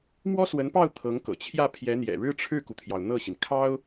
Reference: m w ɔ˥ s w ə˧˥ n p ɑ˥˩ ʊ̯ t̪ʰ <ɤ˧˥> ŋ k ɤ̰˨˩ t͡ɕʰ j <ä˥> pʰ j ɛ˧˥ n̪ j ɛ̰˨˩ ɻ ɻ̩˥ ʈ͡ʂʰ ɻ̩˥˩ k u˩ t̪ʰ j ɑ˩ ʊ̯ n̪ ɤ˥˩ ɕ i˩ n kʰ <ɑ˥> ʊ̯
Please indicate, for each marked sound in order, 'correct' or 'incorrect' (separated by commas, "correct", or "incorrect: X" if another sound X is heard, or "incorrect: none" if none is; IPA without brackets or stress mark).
correct, incorrect: ä˥˩, correct